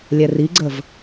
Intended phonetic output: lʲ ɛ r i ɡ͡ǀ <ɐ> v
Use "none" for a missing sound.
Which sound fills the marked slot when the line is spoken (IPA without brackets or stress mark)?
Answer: ə